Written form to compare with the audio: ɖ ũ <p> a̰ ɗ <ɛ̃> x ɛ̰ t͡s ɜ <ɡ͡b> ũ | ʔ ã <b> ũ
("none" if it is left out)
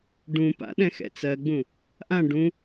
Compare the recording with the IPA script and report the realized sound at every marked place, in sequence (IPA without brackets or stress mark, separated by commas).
p, ɛ̃, ɡ͡b, ɖ